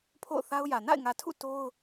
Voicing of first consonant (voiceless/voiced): voiceless